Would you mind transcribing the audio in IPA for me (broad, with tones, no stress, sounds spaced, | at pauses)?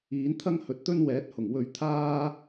iː˨˥ n t̪ʰ ɐ˥ ŋ h ɵ˨ t̚ t̪ ɵ˥ n w ɛː˨˥ t̚ h ʊ˨˩ ŋ w ɵ˧ ɥ t̪ʰ aː˥